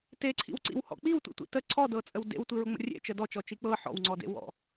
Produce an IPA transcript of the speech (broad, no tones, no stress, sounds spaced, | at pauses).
t e ǀʰ ḭ w ǀ ḭ w h ɔ̰ k͡p i w tʷ ḭ tʷ ḭ t ə ǀʰ ɔ d ɤ t͡sʼ ə w d ḛ w tʷ i ɹ ʊ ŋ͡m ə̰ rʲ ḛ t͡ʃ ə d ɔ t͡ʃ ɔ t͡ʃ i k͡p ɤ ħ ɔ̰ w ŋ͡ǀ ɔ d ḛ w ɔ̰